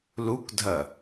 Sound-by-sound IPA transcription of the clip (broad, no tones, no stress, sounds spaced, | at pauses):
l u k dʱ ɐ